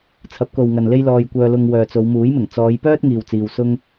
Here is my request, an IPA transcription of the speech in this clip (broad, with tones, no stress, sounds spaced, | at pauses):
t͡sʰ ɐ˨˥ p̚ k o˨ w ŋ ɐ˨ n l e˥ j l ɔː˧ j kʷ œː˧ l ʊ˧ ŋ w œː˨ t͡s o˨˧ w m uː˨˥ j m ɪ˨˩ ŋ t͡s ɔː˨˧ j p œː˥ t̚ ŋ iː˨ w t͡s iː˨ w s ʊ˥ ŋ